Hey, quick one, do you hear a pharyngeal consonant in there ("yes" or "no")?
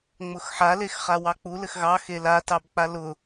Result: yes